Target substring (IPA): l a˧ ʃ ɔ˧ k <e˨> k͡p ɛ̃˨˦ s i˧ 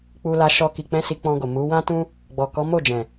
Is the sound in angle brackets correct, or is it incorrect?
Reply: incorrect